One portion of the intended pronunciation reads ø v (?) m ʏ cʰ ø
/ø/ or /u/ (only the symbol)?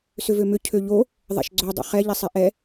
ø